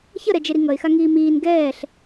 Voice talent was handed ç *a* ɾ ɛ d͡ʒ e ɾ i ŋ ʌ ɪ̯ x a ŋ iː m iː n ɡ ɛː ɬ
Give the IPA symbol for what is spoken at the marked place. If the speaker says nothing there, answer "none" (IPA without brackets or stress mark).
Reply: ʌ